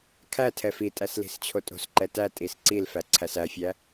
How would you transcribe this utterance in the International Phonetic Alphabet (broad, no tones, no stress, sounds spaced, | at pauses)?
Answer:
kʰ æ tʰ ɛ f i tʼ æ s l i̤ s t͡ɕʰ o tʼ o̤ s ǃ ɛ t æ tʼ i s ǀ i l f æ ǀʰ æ s æ fʲ æ